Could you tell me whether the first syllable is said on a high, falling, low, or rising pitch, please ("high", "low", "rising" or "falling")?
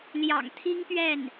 low